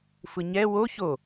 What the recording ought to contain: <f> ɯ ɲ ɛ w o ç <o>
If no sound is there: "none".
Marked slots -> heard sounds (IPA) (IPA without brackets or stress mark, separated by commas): f, o